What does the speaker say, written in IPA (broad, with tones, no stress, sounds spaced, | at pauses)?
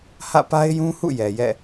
h ä̰˦˨ p a˦ ɪ̯ j ũ˦ h ṵ˦˨ j ɛ˨ j ɛ̰˦˨